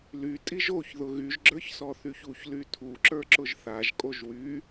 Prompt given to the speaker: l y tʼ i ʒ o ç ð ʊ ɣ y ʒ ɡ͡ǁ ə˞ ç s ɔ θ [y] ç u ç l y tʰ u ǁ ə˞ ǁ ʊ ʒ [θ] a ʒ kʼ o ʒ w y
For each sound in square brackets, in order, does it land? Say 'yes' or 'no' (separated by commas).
yes, yes